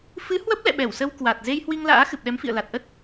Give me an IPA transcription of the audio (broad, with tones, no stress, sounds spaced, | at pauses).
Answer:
f ɨ˨˦ h w ə˦˥ p̚ l ɛ̰˧˨ ɓ ɛ˧˩ w s ə˧ w k w a˨˩ t̚ z e˧ j h w i˧ ŋ l a̰ː˧˥ x ɨ˨˩ p̚ ɗ ɛ˨˦ m f ḭ˧˨ ə̯ l a˨˩ t̚ ʔ ə˦˥ t̚